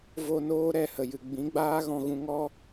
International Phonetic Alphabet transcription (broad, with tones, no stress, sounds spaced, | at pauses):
v o˧ n oː˦ ɾ ɛ˦˨ h ə˨ j ɨ˨ ɡ͡b ĩ˨˦ ɡ͡b aː˦ ɣ ɔ̃˧ ɣ ũ˧ ŋ ɔ˦